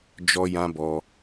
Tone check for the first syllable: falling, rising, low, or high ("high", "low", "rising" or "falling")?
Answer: high